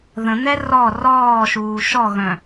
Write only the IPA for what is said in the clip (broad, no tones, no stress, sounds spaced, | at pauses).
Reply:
ð ə̃ n̪ ɛ r ɔ r ɔː ʃ uː ʃ ɔ ɣ œ̃